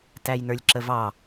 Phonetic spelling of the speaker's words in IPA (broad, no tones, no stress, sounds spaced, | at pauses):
t æ j n ə˞ lʲ ǁ ə v ɑ